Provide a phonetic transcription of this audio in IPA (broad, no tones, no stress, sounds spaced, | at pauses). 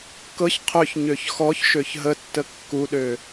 k ɤ ç qʰ ø ç ɲ ø ç x ɔ ç ʃ ø ç ɦ ə tː ə kː u ɗ ø